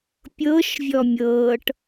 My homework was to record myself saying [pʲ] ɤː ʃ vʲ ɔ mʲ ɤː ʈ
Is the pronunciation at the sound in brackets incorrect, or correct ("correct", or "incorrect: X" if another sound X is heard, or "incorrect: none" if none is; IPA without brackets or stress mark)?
correct